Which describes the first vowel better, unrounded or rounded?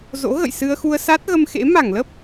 rounded